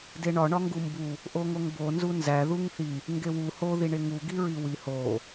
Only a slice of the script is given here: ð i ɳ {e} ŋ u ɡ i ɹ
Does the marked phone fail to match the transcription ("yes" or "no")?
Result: no